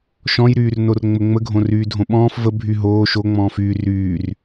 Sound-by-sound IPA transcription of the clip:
ʃ ɔ̃ j ɾ yː r n o r ŋ͡m ə ŋ͡m ə ɡʱ õ r yː dʱ õ ɓ ɔ̃ː f v ə bʱ y ɦ oː ʃ o ŋ͡m ɔ̃ː f yː r yː r

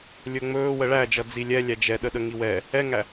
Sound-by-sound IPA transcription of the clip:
lʲ ɵ ŋ͡m ɵː w ə ɭ æ d͡ʒ ʌ d͡z i lʲ ɛ lʲ æ d͡ʒ ɛ ɗ ə ɗ ə ŋ i w ɛ | ɛ ŋ æ

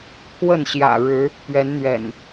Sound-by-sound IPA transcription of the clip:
kʰ w ə˥˨ n ɕ j ä̰˨˩ ɻ ɻ̩˨˦ | p ɥ ɛ˨˦ n n̪ ɥ ɛ̰˨˩ n

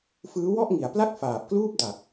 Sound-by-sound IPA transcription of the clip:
f ɯː˦˥ w ɔ˥˩ ʔ ŋ i˩˦ a̯ p l a˥˩ k̚ f aː˨˩ p̚ k l uː˥˩ p̚ d a˨˩ k̚

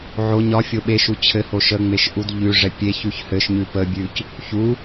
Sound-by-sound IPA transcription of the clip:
ʕ o ɲ ɒ fʲ o ɓ e ʃ u t͡ɕʰ ɘ h o ʃ ə ŋ͡m e ʃ ʔ u d ʎ ʉ ʐ ɛ pʲ e ç ʉ ç h ɘ ʃ ɲ ʉ p ə bʲ ʉ c | ç u

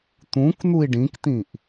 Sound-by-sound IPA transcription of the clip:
t̪ ũ k n̪ u i̯ ɖ ĩ k t̪ ĩ ʔ

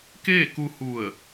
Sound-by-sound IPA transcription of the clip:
k eː˥˨ k u˧ h u˧˩ ə̯

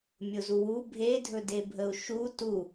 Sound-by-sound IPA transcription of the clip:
mʲ ʊ z u w u bʱ e dʱ ɵ d e bʱ ə u̯ ʃ u t u

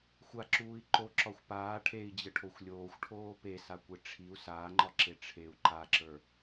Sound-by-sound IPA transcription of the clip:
xʷ a ǁ uː i̯ ǃ o ǁ ɒ xʷ p aː ʈʰ e i̯ d͡ʑ ə ʈʰ o xʷ lʲ oː xʷ ʈʰ oː p e s a kʷ e ʈ͡ʂʰ i u̯ s aː ŋ͡ǃ ɒ ǁ e ʈ͡ʂʰ e u̯ ǃ a ǁ ə˞

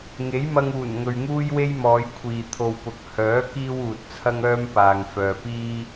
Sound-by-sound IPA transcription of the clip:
ŋ e˨˥ j m ɐ˧ ŋ uː˨˩ n ŋ ɵ˨ ɥ ŋ uː˥ j w e˥ j m ɔː˨˧ j kʷʰ iː˨ t̪ʰ o˨ w p ʊ˨ k̚ h œː˨˥ k iː˥ w uː˨ t̚ t͡sʰ ɐ˥ ŋ œː˥ m p aː˨ ŋ f œː˨ p iː˥

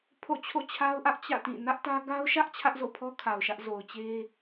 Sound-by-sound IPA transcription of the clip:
pʰ o̰˦˨ t͡ɕʰ o̰˦˨ t͡ɕʰ a˦ ʊ̯ ʔ ä˦ ʔ t͡ɕ ä̰˦˨ t ĩ˦˨ n ä˦ ʔ t ä˦ ɡ a˦ ʊ̯ ʃ ä˦ ʔ t͡ɕʰ ä˦ ʔ z o̰˦˨ pʰ ɔ˦ kʰ a˨ ʊ̯ ʃ ä˦ ʔ z o˨ ʊ̯ t͡ɕ e˦

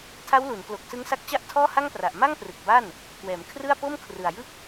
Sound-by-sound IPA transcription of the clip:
tʰ a˦˥ w l u˩˦ n k l o˨˩ k̚ s ɯ˦˥ ŋ s a˦˥ k̚ t͡ɕ a˥˩ ʔ tʰ ɔː˥˩ h a˥˩ ŋ p r a˨˩ ʔ m a˥˩ ŋ p r ɯ˨˩ k̚ b a˥˩ n | k w ɛː˩˦ m kʰ r ɯ˥˩ a̯ p o˥˩ m kʰ r ɯ˨˩ a̯ j ɯ˥˩ k̚

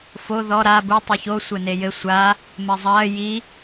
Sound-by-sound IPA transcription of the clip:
f o ð ɔ ɾ a b u tˤ ɨ ç o sʷ ɘ n e j ɘ sʷ a | m ɘ zˤ ɐː j i

